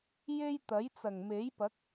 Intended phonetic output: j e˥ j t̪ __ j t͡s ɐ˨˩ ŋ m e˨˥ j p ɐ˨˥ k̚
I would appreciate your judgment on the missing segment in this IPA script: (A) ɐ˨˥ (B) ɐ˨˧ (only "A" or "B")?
A